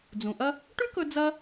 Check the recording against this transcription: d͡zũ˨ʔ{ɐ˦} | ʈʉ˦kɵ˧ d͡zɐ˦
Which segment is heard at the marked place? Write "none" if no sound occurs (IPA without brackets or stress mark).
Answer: ɐ˦